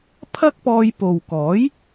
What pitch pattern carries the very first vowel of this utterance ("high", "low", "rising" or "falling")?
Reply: high